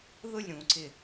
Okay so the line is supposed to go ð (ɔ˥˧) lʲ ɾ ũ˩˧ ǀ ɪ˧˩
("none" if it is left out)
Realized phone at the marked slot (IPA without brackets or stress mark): ʊ˥˧